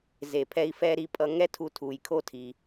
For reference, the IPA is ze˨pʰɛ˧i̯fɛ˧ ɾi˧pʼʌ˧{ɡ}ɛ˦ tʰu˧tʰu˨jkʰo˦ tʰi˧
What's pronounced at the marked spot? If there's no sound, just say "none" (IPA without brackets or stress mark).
ŋ